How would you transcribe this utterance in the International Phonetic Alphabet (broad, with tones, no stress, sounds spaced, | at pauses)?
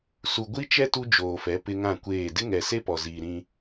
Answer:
s u˨ ɡʷ i˦ t͡ʃ ɛ˦ t u˦ d͡ʒ oː˨ f ɛ˨˦ p ɪ˦ ŋ ã˦˨ kʷ eː˦˨ d ɪ˦ ŋ ɛ˨ s e˦ p ɔ˨ z iː˨ ɾ ĩ˦